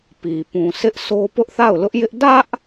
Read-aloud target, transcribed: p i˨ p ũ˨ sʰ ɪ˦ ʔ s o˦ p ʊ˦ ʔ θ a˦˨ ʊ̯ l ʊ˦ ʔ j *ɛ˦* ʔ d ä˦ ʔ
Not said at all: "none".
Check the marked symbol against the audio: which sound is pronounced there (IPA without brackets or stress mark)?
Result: ɪ˦